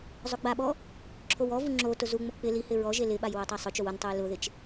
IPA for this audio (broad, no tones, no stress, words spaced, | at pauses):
zˤʊɡ͡baɓɔ | ǁʰowɔvu ŋ͡ǁo tʊzuŋ͡mʊ k͡pɪ lihɪ ɹɔʒe lɪɓaj wotˤasˤʊt͡ʃow ʊntˤuj lʊðɪt͡ʃ